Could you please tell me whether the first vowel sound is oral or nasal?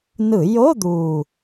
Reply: oral